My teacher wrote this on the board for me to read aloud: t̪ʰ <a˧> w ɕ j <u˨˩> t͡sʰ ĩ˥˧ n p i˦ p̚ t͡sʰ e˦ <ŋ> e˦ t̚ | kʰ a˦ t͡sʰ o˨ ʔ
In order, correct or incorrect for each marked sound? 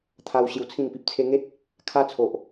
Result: incorrect: a˦, incorrect: u˧, correct

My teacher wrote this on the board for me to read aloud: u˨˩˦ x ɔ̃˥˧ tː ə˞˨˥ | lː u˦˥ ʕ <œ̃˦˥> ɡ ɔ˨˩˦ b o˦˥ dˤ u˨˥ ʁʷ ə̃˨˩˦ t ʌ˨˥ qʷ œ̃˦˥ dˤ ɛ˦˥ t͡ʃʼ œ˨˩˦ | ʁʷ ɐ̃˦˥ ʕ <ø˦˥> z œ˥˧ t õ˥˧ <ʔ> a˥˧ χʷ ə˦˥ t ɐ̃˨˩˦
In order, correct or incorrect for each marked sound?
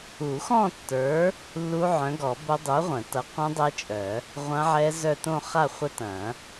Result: incorrect: œ̃˨˥, incorrect: ɛ˦˥, incorrect: χ

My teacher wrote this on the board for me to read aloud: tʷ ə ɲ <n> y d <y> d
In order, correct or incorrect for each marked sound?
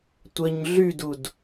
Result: incorrect: ɮ, incorrect: u

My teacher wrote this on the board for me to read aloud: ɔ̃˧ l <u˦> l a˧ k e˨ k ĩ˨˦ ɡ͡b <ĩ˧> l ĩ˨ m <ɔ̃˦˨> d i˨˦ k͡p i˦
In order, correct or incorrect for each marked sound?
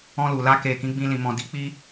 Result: incorrect: u˨, correct, incorrect: ɔ̃˨

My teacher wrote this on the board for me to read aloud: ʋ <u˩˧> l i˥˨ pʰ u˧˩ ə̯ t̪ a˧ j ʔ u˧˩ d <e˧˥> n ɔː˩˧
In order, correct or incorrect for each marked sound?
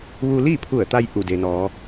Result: incorrect: u˧, incorrect: e˩

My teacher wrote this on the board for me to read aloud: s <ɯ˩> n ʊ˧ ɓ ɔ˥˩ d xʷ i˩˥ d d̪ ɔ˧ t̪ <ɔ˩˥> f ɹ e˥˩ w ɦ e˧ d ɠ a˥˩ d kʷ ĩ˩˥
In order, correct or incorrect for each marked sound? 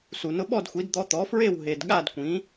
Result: incorrect: u˩, correct

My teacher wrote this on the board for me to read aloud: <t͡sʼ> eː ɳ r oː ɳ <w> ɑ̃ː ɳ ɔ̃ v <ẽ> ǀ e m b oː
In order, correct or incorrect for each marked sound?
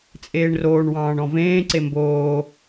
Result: correct, correct, incorrect: ẽː

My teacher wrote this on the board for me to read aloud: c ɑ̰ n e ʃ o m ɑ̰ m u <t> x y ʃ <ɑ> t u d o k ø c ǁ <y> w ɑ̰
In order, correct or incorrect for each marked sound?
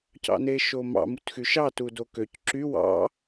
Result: correct, correct, correct

